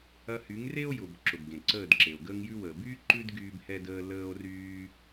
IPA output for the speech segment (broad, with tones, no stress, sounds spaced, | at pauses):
ɐ˧ h y˨˦ ŋ r e˦ o̯ j ʊ˨ b ǁ ʊ˨ b ɡ ẽ˨ ǀ əː˦˨ d ǁ e˨ o̯ ɡ əː˧ ŋ j ʉ˧ w əː˨ b yː˦ ǃ ʉ˦ d ɡ yː˦ b h ɛ˦ d əː˦ l əː˦ o̯ r yː˦